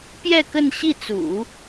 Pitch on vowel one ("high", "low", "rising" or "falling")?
falling